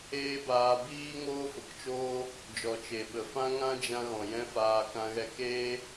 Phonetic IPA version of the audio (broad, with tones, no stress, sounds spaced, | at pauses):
eː˦ b aː˧ b iː˦ ŋ oː˦ f ə˨ k t͡ʃ oː˦ | d͡ʒ ɔ˨ t͡ʃ e˨ ɓ ə˨ f ã˦ ŋ ã˦ d͡ʒ ã˧ ɣ ɔ̃˨ j ɛ̃˦ f aː˧ k ã˦ ɣ ɛ˦ k eː˦